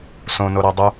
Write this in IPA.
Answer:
s õ n o ɾ æ dˤ u

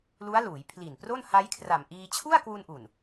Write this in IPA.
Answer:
l u˦˥ a̯ l uː˩˦ j pʰ l i˨˩ n p r o˥˩ n h a˦˥ j kʰ r a˨˩ m ʔ iː˧ t͡ɕʰ u˥˩ a̯ k w u˧ n ʔ u˨˩ n

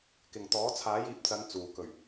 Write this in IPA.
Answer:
k ɪ˨ ŋ t̪ ɔː˨˥ t͡sʰ aː˨˥ j iː˨˥ p̚ t͡s ɐ˨˧ n t͡s uː˨ k ɵ˨˩ ɥ

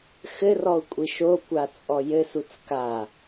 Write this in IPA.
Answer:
x ɘ r ɔ u̯ kʷʼ i ʃ o kʷ a t͡sʼ ɔ j ɘ s u t͡s k a

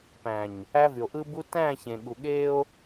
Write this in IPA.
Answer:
p æ̃˨ ɲ | æ˦ v y˨ o̯ ʔ ɯ˦ b u˦ t æ̃˦˨ ç ẽ˨ ɠ u˨ ɠ e˦ o̯

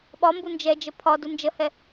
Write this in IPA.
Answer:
ɓ ɒ m b u n d͡ʒ ɛ d͡ʒ ə pʰ ɒ d u n d͡ʒ ə h ɛ

